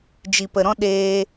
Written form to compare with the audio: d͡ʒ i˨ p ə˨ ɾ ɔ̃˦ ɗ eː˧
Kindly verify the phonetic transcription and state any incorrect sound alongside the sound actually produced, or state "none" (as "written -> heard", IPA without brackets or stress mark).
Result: none